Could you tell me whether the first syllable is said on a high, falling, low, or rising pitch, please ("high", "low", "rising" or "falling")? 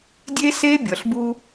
high